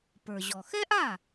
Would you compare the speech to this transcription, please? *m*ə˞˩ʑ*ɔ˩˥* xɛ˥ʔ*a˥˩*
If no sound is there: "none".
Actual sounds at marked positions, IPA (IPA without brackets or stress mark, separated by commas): p, ɔ˩, a˥˩